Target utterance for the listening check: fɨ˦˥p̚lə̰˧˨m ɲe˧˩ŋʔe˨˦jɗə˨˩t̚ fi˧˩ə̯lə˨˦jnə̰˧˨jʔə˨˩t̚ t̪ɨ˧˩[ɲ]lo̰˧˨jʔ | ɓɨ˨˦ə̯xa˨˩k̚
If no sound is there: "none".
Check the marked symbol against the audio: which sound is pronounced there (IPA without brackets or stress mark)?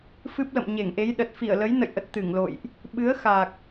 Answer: ŋ